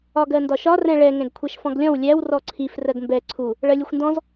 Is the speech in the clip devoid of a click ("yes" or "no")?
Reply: no